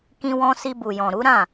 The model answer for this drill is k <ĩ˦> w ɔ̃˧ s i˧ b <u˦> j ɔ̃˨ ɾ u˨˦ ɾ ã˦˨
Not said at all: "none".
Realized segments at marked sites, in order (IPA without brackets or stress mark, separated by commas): ĩ˧, u˨